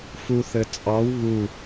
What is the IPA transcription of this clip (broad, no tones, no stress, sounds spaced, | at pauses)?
f u θ ɘ t͡sʼ ɑ w β u